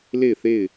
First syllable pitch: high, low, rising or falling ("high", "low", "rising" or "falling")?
falling